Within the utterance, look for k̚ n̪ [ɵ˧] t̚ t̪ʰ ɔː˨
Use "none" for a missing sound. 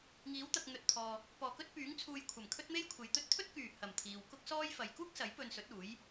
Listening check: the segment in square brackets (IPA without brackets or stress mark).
ɵ˨